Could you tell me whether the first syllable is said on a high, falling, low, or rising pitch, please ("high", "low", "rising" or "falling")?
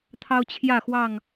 high